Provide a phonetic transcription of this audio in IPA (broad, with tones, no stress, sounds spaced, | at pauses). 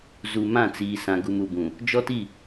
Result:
z u˨ m ã˦˨ t͡s iː˨ s ã˨ ɡ u˨ m u˨ b ũ˨ | d͡ʒ ɔ˦ t i˦˨